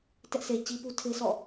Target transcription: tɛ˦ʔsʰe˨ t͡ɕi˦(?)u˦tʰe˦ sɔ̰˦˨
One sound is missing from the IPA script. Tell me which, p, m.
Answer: p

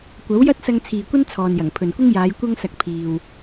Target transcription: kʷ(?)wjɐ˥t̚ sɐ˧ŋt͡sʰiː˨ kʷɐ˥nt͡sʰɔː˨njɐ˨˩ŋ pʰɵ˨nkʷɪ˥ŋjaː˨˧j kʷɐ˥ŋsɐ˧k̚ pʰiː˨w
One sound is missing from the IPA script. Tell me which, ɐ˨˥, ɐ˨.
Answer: ɐ˨˥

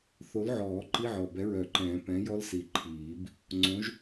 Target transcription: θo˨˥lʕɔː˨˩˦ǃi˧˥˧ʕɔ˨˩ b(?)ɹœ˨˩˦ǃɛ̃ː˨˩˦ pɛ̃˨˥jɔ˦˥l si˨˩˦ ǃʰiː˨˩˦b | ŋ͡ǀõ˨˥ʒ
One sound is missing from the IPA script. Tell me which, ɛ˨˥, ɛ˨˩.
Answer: ɛ˨˥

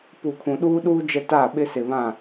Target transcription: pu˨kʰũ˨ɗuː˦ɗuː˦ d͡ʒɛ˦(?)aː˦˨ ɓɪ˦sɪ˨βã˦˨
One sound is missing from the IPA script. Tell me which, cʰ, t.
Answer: t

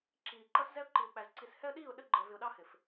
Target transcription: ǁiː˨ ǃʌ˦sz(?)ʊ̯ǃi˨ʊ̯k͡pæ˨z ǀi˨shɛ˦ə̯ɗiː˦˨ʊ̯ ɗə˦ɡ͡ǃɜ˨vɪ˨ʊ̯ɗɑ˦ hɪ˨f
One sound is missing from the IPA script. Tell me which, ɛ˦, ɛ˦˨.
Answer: ɛ˦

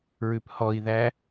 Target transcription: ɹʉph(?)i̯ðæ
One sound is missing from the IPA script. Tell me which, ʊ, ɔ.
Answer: ɔ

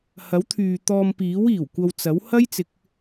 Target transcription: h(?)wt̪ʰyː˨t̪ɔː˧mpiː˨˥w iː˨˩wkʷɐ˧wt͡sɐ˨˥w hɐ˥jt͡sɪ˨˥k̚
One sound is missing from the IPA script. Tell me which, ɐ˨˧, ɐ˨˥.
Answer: ɐ˨˥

